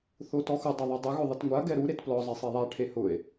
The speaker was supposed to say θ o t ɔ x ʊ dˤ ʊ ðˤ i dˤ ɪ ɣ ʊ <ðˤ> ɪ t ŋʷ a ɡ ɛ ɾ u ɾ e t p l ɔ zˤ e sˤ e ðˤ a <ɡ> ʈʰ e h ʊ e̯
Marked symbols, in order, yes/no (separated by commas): yes, no